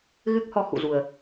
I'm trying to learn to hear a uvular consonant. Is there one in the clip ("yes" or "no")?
no